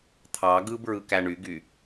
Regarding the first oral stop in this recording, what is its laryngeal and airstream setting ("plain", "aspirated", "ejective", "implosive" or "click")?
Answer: aspirated